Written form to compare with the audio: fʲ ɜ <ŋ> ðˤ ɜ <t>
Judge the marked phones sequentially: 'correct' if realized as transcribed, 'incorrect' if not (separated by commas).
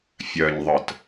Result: incorrect, correct